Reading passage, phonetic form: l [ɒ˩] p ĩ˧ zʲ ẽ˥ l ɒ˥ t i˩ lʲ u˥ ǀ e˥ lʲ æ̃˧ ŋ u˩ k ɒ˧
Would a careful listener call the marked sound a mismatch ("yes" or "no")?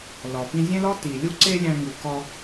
no